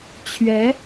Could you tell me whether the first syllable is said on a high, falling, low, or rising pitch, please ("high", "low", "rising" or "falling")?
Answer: rising